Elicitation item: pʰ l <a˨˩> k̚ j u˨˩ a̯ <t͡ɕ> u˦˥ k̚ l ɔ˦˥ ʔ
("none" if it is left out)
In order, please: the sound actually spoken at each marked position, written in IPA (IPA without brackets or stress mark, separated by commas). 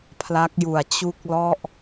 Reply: a˦˥, t͡ɕ